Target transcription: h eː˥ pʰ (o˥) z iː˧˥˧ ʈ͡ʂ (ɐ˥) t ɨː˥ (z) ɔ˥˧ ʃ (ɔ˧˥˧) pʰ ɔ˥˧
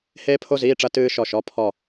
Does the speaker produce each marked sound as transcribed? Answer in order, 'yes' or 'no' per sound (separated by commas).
yes, no, no, yes